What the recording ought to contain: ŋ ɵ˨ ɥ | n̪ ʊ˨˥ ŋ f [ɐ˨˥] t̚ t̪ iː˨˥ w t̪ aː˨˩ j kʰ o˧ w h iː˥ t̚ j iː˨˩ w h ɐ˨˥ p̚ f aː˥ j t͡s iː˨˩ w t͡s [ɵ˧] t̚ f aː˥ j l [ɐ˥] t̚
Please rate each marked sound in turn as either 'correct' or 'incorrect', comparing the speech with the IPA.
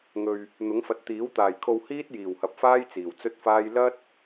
incorrect, incorrect, correct

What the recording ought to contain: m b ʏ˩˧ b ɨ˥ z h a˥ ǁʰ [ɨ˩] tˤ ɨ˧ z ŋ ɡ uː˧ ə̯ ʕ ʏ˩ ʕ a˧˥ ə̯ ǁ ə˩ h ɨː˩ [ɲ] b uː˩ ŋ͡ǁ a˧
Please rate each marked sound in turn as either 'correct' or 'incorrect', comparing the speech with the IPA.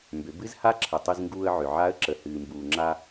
incorrect, incorrect

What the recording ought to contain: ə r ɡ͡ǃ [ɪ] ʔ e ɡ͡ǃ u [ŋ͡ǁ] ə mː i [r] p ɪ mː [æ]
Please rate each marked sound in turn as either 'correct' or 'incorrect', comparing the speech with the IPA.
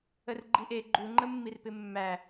incorrect, incorrect, correct, correct

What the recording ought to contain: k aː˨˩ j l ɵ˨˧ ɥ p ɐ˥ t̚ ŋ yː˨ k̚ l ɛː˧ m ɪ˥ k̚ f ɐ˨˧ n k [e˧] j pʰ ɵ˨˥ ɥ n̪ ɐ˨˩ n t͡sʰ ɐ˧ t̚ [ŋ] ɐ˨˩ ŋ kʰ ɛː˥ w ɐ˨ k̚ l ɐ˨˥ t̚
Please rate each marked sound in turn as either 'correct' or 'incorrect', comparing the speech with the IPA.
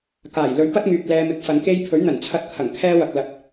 incorrect, incorrect

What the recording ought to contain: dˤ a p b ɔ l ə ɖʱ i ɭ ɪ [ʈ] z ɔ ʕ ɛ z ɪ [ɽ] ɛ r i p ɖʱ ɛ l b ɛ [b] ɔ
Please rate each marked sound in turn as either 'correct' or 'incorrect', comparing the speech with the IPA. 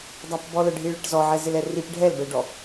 correct, incorrect, incorrect

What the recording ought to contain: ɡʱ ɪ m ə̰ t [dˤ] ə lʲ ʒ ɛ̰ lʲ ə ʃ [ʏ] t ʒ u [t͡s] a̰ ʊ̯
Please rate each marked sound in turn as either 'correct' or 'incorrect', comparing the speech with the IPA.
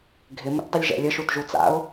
correct, incorrect, correct

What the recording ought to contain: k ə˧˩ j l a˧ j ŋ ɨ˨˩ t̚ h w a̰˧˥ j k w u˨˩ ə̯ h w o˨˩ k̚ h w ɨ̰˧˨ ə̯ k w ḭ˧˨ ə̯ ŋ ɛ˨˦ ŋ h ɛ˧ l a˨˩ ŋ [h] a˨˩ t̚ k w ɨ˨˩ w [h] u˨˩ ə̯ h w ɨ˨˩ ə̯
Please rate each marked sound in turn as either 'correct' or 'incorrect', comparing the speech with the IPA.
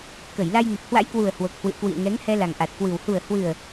incorrect, correct

